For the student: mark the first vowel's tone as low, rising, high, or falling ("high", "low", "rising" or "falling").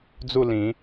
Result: falling